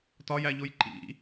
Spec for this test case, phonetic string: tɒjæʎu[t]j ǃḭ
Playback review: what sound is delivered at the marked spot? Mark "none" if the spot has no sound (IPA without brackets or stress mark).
none